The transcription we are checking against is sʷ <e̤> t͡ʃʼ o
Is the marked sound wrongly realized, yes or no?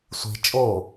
yes